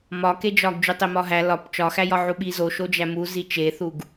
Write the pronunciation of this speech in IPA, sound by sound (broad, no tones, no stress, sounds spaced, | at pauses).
m ɒ k e d͡ʒ ɒ ɡ d͡ʒ u tˤ e m ɒ ɦ æ l ɒ p t͡ʃ ɒ x æ j ɒ ʕ u ɓ i z o ʃ o d͡ʒ æ m u z i t͡ʃ e θ u ɡ